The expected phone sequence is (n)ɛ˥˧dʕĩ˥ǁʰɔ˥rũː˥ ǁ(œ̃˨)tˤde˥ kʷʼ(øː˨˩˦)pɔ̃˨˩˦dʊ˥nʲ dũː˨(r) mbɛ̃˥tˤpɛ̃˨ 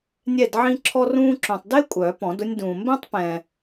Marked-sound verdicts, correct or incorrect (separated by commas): incorrect, correct, incorrect, incorrect